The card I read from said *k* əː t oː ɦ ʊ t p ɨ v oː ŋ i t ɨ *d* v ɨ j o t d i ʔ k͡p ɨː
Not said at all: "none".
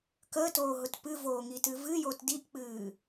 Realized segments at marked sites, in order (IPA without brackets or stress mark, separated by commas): k, none